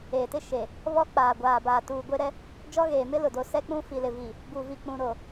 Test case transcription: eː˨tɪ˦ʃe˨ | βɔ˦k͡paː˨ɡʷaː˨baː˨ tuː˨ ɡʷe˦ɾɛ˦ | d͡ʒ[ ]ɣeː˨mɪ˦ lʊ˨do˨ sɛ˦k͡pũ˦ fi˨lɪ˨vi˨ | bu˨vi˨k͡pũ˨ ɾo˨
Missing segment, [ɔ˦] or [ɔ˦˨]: ɔ˦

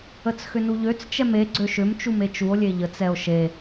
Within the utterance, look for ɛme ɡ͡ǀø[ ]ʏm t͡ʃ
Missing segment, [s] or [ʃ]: ʃ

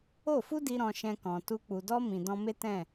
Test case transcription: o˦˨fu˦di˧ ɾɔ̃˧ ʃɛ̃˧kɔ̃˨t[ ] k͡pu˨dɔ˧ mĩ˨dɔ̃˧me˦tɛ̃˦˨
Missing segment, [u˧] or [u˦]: u˧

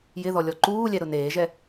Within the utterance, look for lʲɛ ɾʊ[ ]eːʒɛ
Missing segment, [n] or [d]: n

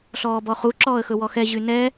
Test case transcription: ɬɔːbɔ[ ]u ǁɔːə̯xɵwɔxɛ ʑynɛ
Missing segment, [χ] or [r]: χ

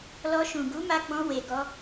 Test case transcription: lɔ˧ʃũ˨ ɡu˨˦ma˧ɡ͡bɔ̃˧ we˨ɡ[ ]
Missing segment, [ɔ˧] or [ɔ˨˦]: ɔ˧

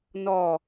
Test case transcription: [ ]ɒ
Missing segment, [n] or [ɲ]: n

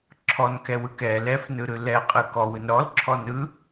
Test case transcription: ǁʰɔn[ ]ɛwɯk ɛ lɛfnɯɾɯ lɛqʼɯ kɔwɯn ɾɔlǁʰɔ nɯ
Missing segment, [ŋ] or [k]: k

